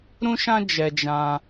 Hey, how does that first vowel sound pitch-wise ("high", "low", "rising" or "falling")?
high